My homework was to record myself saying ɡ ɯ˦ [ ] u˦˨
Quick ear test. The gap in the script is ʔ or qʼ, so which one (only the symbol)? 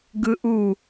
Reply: ʔ